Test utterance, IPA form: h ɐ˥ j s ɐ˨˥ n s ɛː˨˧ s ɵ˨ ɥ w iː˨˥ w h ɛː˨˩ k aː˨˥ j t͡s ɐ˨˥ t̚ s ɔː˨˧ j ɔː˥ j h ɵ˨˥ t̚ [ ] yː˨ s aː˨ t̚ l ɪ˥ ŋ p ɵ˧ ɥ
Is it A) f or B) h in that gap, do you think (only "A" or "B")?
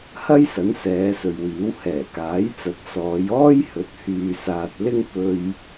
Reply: B